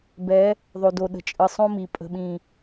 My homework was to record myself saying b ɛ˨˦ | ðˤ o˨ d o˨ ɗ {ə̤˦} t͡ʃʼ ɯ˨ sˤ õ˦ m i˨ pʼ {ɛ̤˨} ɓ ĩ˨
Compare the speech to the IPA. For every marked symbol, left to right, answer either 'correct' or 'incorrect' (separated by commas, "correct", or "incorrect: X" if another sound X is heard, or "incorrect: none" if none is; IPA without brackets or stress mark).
incorrect: ə̤˨, incorrect: ə̤˨